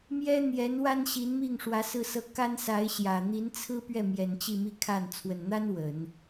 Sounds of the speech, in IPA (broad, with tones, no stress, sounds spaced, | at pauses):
m j ɛ˥ n̪ j ɛ˧˥ n w a˥ n ɕ i˧˥ n m i˥˩ ŋ ʂ w ä˧˥ s ɹ̩˥˧ s ɤ˥˩ k a˥ n s a˧˥ ɪ̯ ɕ j ä˨˩ n̪ i˧˥ n t͡sʰ ɹ̩˥ p ɥ ɛ˥˩ m j ɛ˨˩ n t͡ɕ i˥˧ m i˥˧ kʰ a˥˩ n t͡sʰ w ə˨˩ n n̪ a˥ n w ə˨˩˦ n